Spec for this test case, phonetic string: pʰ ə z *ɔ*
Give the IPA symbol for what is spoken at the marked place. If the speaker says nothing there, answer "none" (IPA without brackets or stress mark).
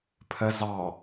ɑ